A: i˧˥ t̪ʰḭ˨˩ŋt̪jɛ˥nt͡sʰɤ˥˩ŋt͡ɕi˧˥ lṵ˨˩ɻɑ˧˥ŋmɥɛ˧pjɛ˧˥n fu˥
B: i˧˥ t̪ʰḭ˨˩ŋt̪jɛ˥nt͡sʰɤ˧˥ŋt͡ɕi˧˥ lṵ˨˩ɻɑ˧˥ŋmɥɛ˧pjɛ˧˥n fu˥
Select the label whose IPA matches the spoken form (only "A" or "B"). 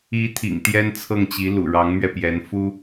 A